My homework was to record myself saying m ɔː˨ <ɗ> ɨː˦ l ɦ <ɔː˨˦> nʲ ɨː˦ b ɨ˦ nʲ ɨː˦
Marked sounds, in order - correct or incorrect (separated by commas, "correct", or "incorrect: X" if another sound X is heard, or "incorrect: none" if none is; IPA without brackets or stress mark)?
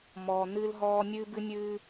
incorrect: n̪, incorrect: ɔː˦